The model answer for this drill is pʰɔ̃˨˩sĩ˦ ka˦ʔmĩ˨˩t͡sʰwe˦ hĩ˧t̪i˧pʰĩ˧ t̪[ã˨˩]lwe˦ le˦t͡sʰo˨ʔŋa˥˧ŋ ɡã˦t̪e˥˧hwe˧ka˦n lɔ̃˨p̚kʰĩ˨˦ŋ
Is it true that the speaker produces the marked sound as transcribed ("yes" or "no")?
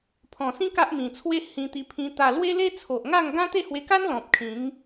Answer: no